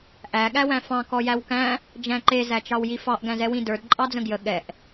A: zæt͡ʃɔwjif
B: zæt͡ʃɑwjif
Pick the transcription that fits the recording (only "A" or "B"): B